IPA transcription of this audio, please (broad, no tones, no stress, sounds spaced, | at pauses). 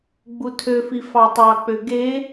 ɡ͡b u tʰ ø f i f ɑ tˤ ɑ k͡p ø ɡ e